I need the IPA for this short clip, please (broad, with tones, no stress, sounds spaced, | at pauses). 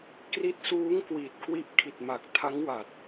k r i˦˥ t̚ s uː˦˥ ŋ k w i˨˩ t̚ k w i˦˥ ʔ kʰ i˨˩ t̚ m a˨˩ k̚ tʰ a˦˥ ŋ w a˨˩ t̚